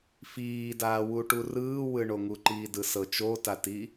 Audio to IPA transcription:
fiːdaːwu ʈurɯːwɯɳo ŋuǃiːdɯsɤ t͡ʃotati

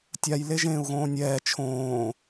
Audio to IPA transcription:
tʲaj leʒẽːu̯ɣõːnʲɛː t͡ʃʰõː

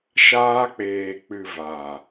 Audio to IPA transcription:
ʃaː˦k͡peː˧ k͡pɨ˧ va˨

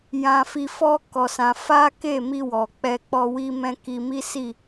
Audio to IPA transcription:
jã˧fi˧fɔ˦ kɔ˧sã˧ fa˦ke˦˨mi˧ wɔ˨ k͡pɛ˧ k͡pɔ˧wi˦ mɛ̃˦ki˧ mi˦ si˦˨

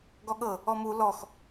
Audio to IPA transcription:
ɡɔɠɤ | ɔmu lɔx

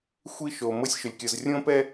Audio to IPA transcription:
xʷi˥ʃo˧ mɤ˥sʲʃʊ˧lʲkʲɤ˧z rʲõ˥pɛ˥

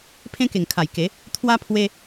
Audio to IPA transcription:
pʰẽ˦ke˨˩ŋkʰa˨˩jke˨˦ | t̪ʰwa˦pʰwe˦

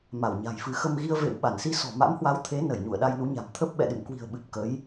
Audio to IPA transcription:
ma˧˩wɲa̤˨˩jfɨ˨˦xə˧m ɣi˧ə̯ vḛ˧˨wɓa˧˩n si˧sɔ̤˨˩ma̰˧˥mhwa˨˦w t̪ʰe˨˦ nə˧˩jɲṵ˧˨ə̯ ɗa˧jnu˨˦ɲa̤˨˩m t̪ʰə˦˥p̚ɓɛ̰˧˨ɗɨ̰˧˨m kwi̤˨˩ə̯ɓɨ˨˩p̚ kə˨˦j

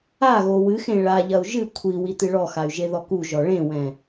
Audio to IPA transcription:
aɣo wɨxẽ ɭaʎɐu̯ ʒɨ kʷʰi witɨɭɔxay̯ ʒeðɔkuʒɔ ɭẽwɛ̃

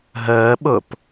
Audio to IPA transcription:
ɦəːɓʊp

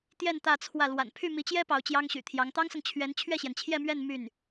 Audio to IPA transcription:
t̪jɛ˥˧n t̪ä˥˧t͡sʰwä˥˩ lwa̰˨˩npʰy˥˩ mi˧˥t͡ɕjɛ˥ pɑ˧˥ʊ̯t͡ɕjɑ˥ŋɕy̰˨˩t̪ʰjɑ˧˥ŋ t̪ɑ˥ŋsɤ˨ŋt͡ɕʰɥɛ˧˥n t͡ɕʰɥɛ˥˩ɕjɛ˩nt͡ɕʰjɛ˥˧ mɥɛ˥˧n my˥˩n

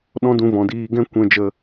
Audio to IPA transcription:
ɗɔ̃˦dũ˧ vɔ̃˨diː˧ɡɛ̃˦ kʷɛ̃˧d͡ʒə˧

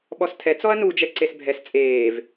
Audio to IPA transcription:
ɓɔstʰɛ t͡sɔɐ̯nud͡ʒɛ ǀesbʱɛs t͡sʼeːv

